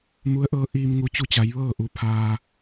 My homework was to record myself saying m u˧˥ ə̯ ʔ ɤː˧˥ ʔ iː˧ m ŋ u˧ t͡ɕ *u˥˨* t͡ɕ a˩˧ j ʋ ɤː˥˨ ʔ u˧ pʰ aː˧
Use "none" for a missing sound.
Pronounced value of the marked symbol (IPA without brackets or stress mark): u˧